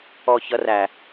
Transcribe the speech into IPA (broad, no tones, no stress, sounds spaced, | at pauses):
ɔ ç ʌ r æ